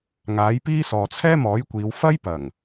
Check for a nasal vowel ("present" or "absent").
absent